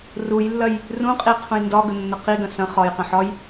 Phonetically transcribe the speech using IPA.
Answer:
r u j lː ɐ j | r ũ qʼ i qʰ ũ j n d ɒ ɡ ə nː ə q i ɡ ɐ̃ s ɐ̃ χ ɒ j q ɐ̃ ħ ɒ j

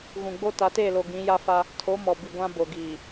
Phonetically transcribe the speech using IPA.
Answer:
ɣ ũ˨ ɡ͡b o˦ t a˨˦ t eː˦˨ l o˨ ɡ ĩ˨˦ j a˦ f a˦ | tʰ o˨˦ m ɔ˨ b i˨ ɡʷ ã˦ b o˨ ɡ iː˨

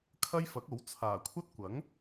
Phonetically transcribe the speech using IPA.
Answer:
kʰ ɐ˥ j f ɐ˨˥ k̚ o˨˥ w t͡sʰ aː˨˩ kʷʰ ɐ˥ t̚ kʷ ɐ˨˥ ŋ

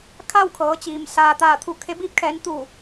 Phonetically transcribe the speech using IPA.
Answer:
kʰ a˥˨ w kʰ ɤː˩˧ t͡ɕ iː˩ m s aː˩ t̪ aː˧˩ t̪ʰ u˧˩ kʰ e˧ b iː˧ p̚ kʰ ɛː˩˧ n t̪ u˧˩

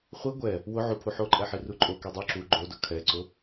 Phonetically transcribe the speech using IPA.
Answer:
χʷ i ɡʷ ɛ | w ʊ ʕ u pʰ u ħ o ǃʼ ɛ ħ i r u ǃʼ o k i dˤ u ǁ u ɡ͡ǃ o d ʊ kʰ ɛ ǀ ʊ

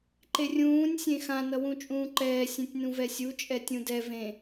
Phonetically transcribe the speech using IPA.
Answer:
ǃ e rʲ ũː nʲ sʲ ẽ x ã n ʌ w ũ t͡ʃʼ ũː ǃ ɛː sʲ ẽ tʲ n ũ v ɛ sʲ u t͡ʃʼ ɛ tʲ ũ d ɛ v ẽ

